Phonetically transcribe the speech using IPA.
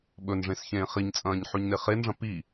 ɓ ɵ n ʐ ẽ s ç ẽː χ i ɲ t͡sʼ ɐ̃ː ɲ ħ ʉ ɲ n e χ e n ʐ ɐ̃ p i

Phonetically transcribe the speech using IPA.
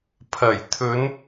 pʰ ɐ˨˩ j t̪ʰ ɵ˨˧ n

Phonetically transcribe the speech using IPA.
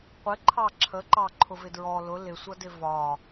qʷ ɪ ǃʰ ɑ ǁʰ ə ǃ ɑ ǃʰ ʊ v ɪ d ɹ ɔ l ʊ l ɪ sʷ ʌ d ɪ v ɒ

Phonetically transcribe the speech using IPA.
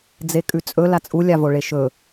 d͡z e kʼ ʉ t͡sʼ ɵ l a t͡sʼ u lʲ a v o ɭ e ʃ ɵ

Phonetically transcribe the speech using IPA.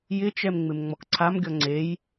j ɪ t͡ʃ ɛ m ŋ͡m ɪ m ŋ͡m ɔ k ǀʰ a m ɡʲ ɔ ŋ͡ǀ e j

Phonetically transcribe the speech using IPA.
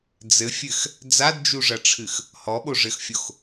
d͡z ɘ fʲ ɘ x | d͡z a d d͡ʒ u ʐ ɐ ʈ͡ʂʰ ɨ x | h ɔ ɓ o ʐ ɘ x fʲ o x

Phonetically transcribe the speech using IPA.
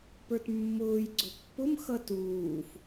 p ə˞ t mː ʊː j ɡ͡ǀ ʊ pː ʊ m x ʌ t uː f

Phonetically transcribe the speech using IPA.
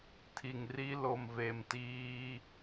tʰ i˨ ŋ r i˦ l o˨ m v e˨ m t iː˦

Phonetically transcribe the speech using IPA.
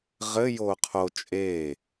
ʁ ɘ j oː qʰ o t͡ʃʼ eː

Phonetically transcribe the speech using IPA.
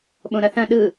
ɓ õ ɾ ɐ θ ɐ̃ ɗ ɯ

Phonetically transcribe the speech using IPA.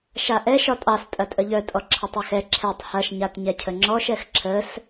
ʃ a ʔ ɛ ʃ ɒ tʼ ɑ s tʼ ɐ tʼ ə ʎ œ tʼ ɔ ǁʰ ɐ tˤ ɛ x ɛ ǁʰ ɛ tˤ h ɐ ʃ ɲ a t ɲ ɛ cʰ ə ŋ͡ǁ ɔ ʃ ɛ x ǁʰ ə s

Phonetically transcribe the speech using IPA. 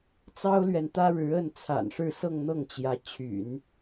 t͡s ɑ˥ ʊ̯ l ɥ ɛ˨ n t̪ ä˥ ɻ ɻ̩˧˥ ə˥˩ n t͡sʰ a̰˨˩ n ʂ ɻ̩˥˧ s ɤ˥˧ ŋ n̪ ɤ˥˩ ŋ t͡ɕ j ä˧˥ t͡ɕʰ y̰˨˩˦ n

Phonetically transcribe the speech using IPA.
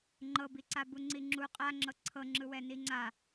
ŋ͡ǃ ɤ b i ǀ a b u ŋ͡ǀ i ŋ͡ǁ u qʼ a ŋ͡ǁ ɤ ǀʰ ɤ ŋ͡ǁ ɯ w ɛ n i ŋ͡ǀ a

